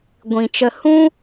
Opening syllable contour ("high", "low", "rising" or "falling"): low